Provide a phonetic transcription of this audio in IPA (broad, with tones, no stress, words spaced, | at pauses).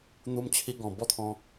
n̪u˧mt͡ɕʰi˧ ɡɔ̃˨˩ bɔ˥˧t̪ʰɔ̃˧